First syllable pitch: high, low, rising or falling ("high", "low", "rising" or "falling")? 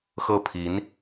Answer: falling